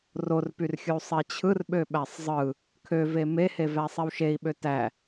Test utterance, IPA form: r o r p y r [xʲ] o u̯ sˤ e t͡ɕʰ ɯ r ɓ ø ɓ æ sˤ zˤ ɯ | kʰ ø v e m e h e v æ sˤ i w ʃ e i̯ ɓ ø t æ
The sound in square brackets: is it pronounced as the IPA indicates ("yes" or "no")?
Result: yes